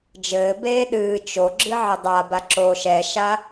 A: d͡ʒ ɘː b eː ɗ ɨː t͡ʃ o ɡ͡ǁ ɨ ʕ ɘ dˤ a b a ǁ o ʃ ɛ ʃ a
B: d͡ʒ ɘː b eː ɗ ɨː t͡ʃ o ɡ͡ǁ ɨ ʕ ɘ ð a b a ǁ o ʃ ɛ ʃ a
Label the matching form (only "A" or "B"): A